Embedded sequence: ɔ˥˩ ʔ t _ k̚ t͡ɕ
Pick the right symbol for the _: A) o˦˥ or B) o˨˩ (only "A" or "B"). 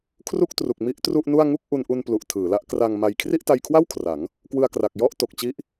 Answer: B